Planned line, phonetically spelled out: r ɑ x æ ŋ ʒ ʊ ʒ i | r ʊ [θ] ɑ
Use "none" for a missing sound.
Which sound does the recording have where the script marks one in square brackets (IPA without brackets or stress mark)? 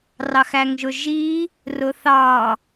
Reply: θ